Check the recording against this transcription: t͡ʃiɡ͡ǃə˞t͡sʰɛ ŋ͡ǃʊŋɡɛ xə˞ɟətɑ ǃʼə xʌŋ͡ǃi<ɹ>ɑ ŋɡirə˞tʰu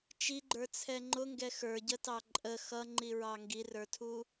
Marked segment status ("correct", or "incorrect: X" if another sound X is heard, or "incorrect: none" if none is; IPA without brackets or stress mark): correct